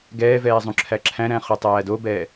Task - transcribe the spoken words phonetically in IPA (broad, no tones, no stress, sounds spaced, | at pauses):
ɡ ɛː v ɛː zˤ ũ ǁʰ æ ǁʰ æ̃ ɾ æ̃ χ u tˤ æː d o b ɛ